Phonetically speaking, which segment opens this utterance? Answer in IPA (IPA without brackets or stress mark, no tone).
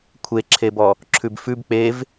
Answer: kʷʰ